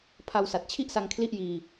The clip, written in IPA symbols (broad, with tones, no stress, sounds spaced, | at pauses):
pʰ a˧ w s a˨˩ t̚ t͡ɕʰ i˥˩ ʔ s a˧ ŋ kʰ l i˥˩ ʔ j iː˧